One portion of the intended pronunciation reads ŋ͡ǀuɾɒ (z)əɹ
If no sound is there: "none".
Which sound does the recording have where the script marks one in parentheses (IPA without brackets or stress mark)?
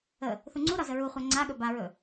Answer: z